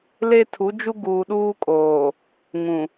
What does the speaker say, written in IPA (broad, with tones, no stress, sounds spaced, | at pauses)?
l e˦ tʰ u˨˦ d͡ʒ u˦ ɡ uː˨ ɗ uː˦ kʼ oː˨ | ŋ ũ˨